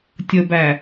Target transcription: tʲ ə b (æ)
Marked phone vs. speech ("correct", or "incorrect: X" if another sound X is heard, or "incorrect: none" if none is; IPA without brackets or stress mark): correct